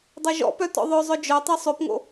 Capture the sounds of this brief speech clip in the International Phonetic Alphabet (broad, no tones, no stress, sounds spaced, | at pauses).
dˤ œ ʒ ɔ̰ p œ t ɔ̰ ðˤ œ zˤ œ d͡ʒ œ tˤ o sˤ ø p ŋ o̰